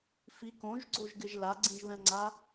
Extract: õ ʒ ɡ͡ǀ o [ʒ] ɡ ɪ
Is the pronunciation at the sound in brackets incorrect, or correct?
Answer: correct